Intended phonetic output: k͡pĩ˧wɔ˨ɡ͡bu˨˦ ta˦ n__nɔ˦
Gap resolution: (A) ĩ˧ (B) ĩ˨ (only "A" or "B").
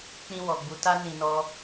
A